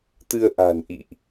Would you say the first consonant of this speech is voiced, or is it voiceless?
voiceless